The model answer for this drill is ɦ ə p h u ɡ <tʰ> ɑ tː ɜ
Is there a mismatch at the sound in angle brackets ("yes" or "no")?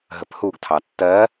no